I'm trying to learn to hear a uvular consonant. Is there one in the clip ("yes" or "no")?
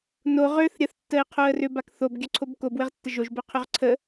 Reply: yes